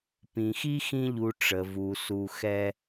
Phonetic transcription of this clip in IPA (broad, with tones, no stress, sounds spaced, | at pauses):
p ĩ˩ x i˥ x ĩ˦ ʎ u˨ ʈ͡ʂ ə˩ v u˩ s u˨ x ɛ˦